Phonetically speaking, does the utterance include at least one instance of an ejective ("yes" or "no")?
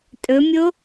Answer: yes